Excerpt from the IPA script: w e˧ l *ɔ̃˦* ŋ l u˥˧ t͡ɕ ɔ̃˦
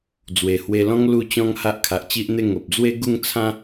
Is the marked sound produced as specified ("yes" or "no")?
yes